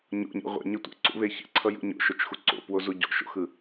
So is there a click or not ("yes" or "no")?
yes